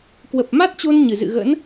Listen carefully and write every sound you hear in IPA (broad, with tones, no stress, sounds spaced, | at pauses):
k w ə˨˩ p̚ m a˦˥ t̚ t͡ɕ o˧ n ɲ ɨ˧˩ z ɨ̰˧˨ ɣ ə̰˧˥ n